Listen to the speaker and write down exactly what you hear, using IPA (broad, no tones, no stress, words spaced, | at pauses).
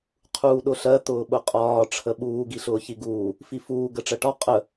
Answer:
qʰuːɗʊɬɜ t̪ʊːɓʊqʼɒː ʈ͡ʂʰəɓuː ɡiɬʊːçiɡuː | fifuː ɡəʈ͡ʂɜʈɒ qʼə